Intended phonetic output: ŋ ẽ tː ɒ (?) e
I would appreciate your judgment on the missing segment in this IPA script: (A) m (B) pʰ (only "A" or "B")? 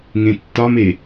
A